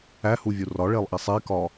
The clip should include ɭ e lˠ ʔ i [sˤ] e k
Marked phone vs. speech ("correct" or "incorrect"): correct